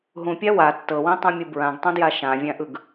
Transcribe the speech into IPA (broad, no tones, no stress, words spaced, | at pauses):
ɦũpʲa wa tːɤwĩtˤũmʲu bɹãɡtˤũdja ʃãvʲãʔɯɡ